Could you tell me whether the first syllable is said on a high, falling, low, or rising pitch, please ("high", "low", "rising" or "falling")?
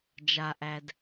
low